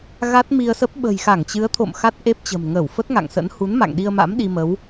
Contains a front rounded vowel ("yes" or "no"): no